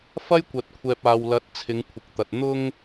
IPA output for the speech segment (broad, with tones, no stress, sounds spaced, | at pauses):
f ɐ˥ j kʷ ɐ˨ t̚ kʷʰ ɛː˨ p̚ aː˨ w l ɐ˨˥ t̚ t͡sʰ ɪ˨˧ ŋ kʷʰ ɪ˨ k̚ t̪ ɐ˨ t̚ n̪ ʊ˧ ŋ